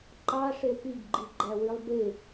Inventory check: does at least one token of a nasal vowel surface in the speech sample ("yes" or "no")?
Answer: no